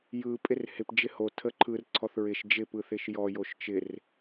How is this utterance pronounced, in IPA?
j ɯ pʼ ɪ r h ɪ p d͡ʒ ɪ h o tʰ ə ǃʰ ɯ r ǀʰ ɔ θ ɹ ɪ ʃ d͡ʒ ɪ p ɯ θ ɪ ʃ j ɔ j o ʃ t͡ʃ ɪ r

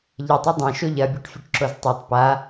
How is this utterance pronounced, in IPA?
ʎ ɐ tˤ ɵ dˤ ã ʃ o ʎ ɐ bʲ u ʈ fʲ ɵ ʈ ǁ o z tˤ ʉ tˤ p a

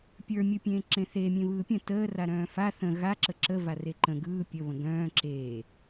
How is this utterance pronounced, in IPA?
pʲ ə˞ mʲ ɯ pʲ ẽː ǁ ẽ θ e mʲ ẽ β ɯː pʲ ə̃ t əː r a ɾ œ̃ː f a θ ə̃ ɣ a ǁ ə ǁ ə v a r e ǃ ə̃ ɡ ɯː pʲ ə β ə̃ ɡ œ̃ː ǁ eː

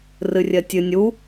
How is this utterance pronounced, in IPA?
r ɨ rʲ ɜ tʲ ɨ nʲ u

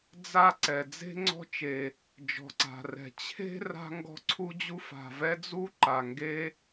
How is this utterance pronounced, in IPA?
d͡z a˥ ǀ ɛ˩ d͡z e̤˥ ŋ͡ǀ ɔ̤˥ t͡ʃ e˩ | d͡ʒ ɔ̤˩ ǀ a̤˩ r ɛ̤˩ t͡ɕʰ e̤˥ r a̤˥ ŋ ɡ ɔ̤˥ ǀʰ u˥ d͡ʑ u˥ f a̤˩ v ɛ˥ d͡z u˥ ǃ a˩ ŋ ɡ e˥

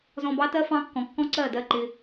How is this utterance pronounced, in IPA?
z ɔ̃˧ b ɑ˦ t ɜ˦ f ɑ̃˦ kː ɔ̃˨˦ kː ɔ̃˦ ǀ ɜ˦˨ d ɜ˦˨ ǃ ɪ˧

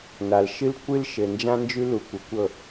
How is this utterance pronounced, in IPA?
n a˨ l ʃ ɨ˦ l kʷ ɨ˦ l ʃ ɘ˨ n d͡ʒ ã˦ n d͡ʒ ʉ˦ l u˨ kʷ ə˨ kʷ ɤ˦˨

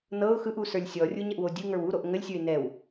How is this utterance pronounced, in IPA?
n ɤ ʊ̯ x ɯ ʔ u s ə˞ lʲ sʲ ɔ rʲ u ɲ ə ʔ w o dʲ ɯ ŋ ə˞ w u ɾ o ʔ ŋ ə lʲ sʲ ə˞ ɪ̯ n ɛ w

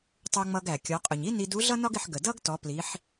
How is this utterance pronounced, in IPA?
tˤ u˧ ŋ͡m ʌ˧ ɡ æ˩ kʲ ɔ˩˧ qʼ ʊ˩ ɲ i˥ n i˧ d u˧˥ ɮ ʌ˥ n ɒ˥ ɡ ɪ˧ ħ ɡ ə˩ d ʌ˥ ɡ t ɔ˩˧ p l i˩˧ ħ

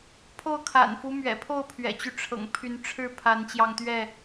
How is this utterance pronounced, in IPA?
pʰ o˥˨ ʊ̯ kʰ a̰˨˩ n f u˦ m ɥ ɛ̰˨˩ pʰ o˥˨ ʊ̯ pʰ ɥ ɛ̰˨˩ t͡ɕ y˦ ʈ͡ʂʰ ɤ̰˨˩ ŋ pʰ y˨˦ n ʈ͡ʂʰ ɻ̩˥˨ pʰ a˨˦ n t͡ɕ j ɑ˧ ŋ t̪ ɥ ɛ˥˨

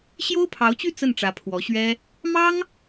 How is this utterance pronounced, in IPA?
ɕ j o˥ ʊ̯ pʰ ɑ˧˥ ʊ̯ t͡ɕ y˥˧ t͡s ə˥˩ n ʈ͡ʂ ä˧˥ pʰ w ɔ˧˥ ɕ ɥ ɛ˥ | m ɑ˥ ŋ

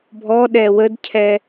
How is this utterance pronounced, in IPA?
bʱ ɔ ɗ ɛ w ə d cʰ ɛ

